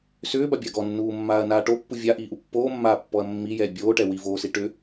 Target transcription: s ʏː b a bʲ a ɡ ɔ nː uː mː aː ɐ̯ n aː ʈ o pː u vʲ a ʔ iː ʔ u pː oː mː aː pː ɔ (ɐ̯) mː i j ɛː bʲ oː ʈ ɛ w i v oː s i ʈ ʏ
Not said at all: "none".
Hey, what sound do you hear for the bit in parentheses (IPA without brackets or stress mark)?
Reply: ɐ̯